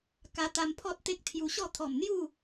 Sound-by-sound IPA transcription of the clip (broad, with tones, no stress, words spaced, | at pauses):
ka˧ t̪a˧mpʰɔ˦t̚ t̪e˦k̚t̪ʰju˧ ɕɔ˥˧ t̪ʰɔ˨˩mn̪ju˥˧